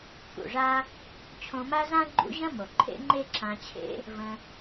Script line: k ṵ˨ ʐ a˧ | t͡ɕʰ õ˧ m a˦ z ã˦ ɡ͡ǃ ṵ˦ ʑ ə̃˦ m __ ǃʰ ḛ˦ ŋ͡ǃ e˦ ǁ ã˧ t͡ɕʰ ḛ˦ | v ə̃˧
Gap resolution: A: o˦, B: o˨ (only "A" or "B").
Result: B